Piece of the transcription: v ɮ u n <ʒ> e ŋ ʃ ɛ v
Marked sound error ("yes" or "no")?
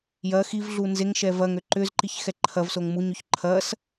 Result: yes